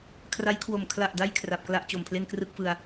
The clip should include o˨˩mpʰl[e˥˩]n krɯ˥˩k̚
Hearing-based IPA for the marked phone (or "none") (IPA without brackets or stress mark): e˥˩